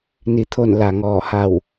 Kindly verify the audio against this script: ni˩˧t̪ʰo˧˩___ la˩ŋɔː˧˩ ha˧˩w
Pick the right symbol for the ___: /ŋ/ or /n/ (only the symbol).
n